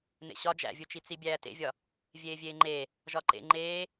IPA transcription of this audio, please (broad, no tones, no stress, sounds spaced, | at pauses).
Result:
n̪ ḛ ɕ ɒ d͡ʒ æ̰ vʲ u t͡ʃ i t͡s i bʲ æː t ḛ vʲ ɒ | vʲ eː vʲ eː ŋ͡ǃ e | ʒ ɒ ǃ ḛ ŋ͡ǃ eː